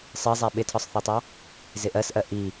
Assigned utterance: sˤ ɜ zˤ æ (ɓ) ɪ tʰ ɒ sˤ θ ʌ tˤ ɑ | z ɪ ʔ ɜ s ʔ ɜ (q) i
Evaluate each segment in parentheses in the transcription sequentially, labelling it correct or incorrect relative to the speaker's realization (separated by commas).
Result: correct, incorrect